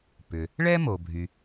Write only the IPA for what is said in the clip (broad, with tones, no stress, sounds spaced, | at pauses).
p ʏ˩ | ɭ ɛ˥ m o˩ bʱ y˩